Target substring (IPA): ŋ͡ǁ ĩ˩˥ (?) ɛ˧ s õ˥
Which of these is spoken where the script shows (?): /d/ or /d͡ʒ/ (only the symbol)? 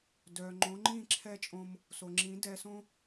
d